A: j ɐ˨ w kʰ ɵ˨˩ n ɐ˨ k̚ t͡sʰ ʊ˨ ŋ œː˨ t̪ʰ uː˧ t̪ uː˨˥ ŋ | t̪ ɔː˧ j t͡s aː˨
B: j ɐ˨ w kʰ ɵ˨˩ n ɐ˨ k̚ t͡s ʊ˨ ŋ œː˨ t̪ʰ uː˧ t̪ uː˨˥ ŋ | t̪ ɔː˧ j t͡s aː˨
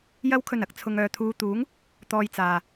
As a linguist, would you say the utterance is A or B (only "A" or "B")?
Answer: A